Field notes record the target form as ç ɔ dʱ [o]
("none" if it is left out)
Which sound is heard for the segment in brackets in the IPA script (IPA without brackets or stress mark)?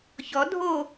o